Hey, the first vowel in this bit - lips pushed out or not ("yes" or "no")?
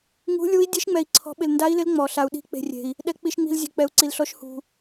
yes